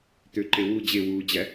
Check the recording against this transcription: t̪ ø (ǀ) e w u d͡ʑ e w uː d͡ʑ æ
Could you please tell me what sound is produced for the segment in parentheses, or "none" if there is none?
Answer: ǃ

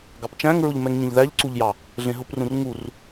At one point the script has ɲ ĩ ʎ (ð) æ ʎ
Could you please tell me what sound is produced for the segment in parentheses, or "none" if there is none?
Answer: ð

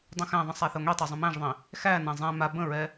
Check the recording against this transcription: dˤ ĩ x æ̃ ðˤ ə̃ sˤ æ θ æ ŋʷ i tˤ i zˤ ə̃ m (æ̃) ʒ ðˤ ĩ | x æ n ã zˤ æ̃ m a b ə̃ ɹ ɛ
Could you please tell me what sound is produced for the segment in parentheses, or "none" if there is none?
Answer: æ̃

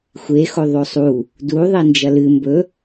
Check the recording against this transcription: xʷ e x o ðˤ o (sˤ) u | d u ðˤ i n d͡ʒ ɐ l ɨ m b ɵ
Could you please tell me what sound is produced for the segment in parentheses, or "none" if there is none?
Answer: sˤ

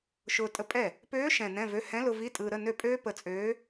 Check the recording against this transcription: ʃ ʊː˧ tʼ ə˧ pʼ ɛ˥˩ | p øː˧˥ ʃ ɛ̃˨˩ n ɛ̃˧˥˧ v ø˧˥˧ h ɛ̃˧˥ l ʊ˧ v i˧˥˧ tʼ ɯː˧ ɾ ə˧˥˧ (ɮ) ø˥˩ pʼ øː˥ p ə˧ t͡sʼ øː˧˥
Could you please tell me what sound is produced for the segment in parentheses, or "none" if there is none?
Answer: n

